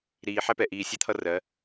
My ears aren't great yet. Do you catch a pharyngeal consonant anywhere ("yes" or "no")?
yes